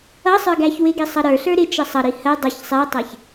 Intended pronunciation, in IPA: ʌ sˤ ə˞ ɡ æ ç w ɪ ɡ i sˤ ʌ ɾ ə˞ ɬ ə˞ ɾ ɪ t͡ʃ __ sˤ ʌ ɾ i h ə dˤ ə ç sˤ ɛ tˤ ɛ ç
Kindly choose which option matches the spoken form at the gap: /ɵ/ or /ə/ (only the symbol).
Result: ə